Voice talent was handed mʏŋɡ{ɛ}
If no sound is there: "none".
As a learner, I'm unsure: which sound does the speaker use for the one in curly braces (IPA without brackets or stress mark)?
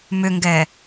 ɛ